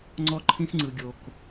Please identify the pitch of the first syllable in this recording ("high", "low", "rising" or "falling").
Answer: high